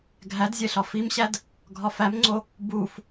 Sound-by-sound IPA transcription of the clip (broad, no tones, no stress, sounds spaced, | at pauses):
ɡʱ æ d zʲ e ɬ ɒ f i m ɕ æ d | ɡʱ ɒ f æ m ŋ͡ǀ o | b u f